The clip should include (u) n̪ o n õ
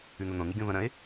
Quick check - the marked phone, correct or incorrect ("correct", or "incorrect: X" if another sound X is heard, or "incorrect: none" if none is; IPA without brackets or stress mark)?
incorrect: ʉ